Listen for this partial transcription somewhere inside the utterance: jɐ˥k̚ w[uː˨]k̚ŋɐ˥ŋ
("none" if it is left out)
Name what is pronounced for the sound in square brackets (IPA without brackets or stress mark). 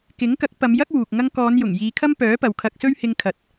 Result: uː˨